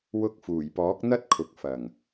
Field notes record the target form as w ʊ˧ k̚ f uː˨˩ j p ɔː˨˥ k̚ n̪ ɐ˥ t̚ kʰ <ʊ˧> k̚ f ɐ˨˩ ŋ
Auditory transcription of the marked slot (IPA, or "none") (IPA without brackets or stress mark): ʊ˨